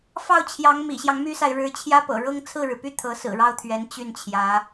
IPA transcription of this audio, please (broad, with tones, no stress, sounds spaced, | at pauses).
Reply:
f ɑ˥˩ ʊ̯ t͡ɕʰ j ɑ˧˥ ŋ m ḭ˨˩ ɕ j ɑ˦ ŋ m y˥ s a˨ ɪ̯ ɻ ɻ̩˧˥ t͡ɕʰ j ä˥ p ɤ̰˨˩ ɻ ɤ˥ ŋ t͡sʰ ɹ̩˥˩ ɻ ɻ̩˩ p y˥˩ t̪ʰ ɤ˧˥ s ɹ̩˨˩ ɻ ɑ˥˩ ʊ̯ t̪ʰ ɥ ɛ˧˥ n t͡ɕ y˥˩ n t͡ɕʰ j ä˧˥